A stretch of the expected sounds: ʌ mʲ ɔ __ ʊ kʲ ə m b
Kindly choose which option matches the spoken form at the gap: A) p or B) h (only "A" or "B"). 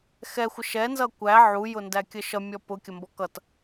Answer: A